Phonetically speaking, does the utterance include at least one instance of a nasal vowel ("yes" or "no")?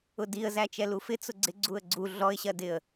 no